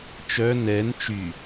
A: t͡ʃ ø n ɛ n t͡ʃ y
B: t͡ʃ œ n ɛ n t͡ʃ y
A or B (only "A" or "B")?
B